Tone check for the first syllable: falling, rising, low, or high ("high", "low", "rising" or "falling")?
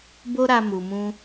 high